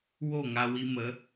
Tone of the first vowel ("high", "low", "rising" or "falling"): falling